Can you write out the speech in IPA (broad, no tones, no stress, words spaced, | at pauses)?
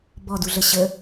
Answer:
bɔduɮə ɕə